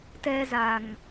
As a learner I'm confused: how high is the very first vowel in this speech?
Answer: mid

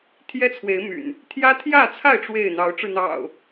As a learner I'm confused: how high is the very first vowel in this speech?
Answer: mid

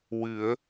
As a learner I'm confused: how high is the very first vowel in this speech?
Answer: high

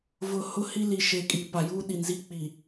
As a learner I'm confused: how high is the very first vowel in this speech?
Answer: high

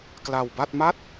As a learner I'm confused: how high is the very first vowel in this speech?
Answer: low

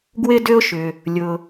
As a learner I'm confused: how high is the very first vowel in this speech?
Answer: high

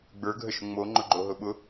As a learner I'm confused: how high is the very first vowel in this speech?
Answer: mid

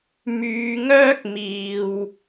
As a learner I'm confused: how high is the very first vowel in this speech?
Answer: high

